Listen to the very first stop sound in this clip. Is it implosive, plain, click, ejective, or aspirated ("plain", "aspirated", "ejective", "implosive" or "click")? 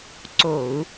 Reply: click